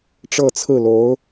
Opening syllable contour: falling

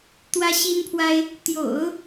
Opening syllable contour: high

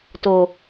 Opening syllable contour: low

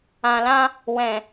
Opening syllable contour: low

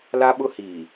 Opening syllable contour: high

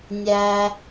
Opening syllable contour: high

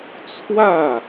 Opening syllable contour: falling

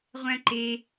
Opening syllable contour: high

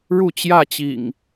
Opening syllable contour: falling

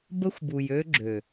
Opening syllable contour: high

